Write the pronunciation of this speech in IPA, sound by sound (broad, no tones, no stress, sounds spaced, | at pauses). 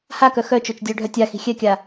h a k œ x œ t͡ʃ o t͡ʃ dʲ œ ɖʱ œ tʲ a x i̤ xʲ ɛ kʲ a